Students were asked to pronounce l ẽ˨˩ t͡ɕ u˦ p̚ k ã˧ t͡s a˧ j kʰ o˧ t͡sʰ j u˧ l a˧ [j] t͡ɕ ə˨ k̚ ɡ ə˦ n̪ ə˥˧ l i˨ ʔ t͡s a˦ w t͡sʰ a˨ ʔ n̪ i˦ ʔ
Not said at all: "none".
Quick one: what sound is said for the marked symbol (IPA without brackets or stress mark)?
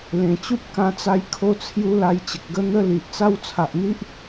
j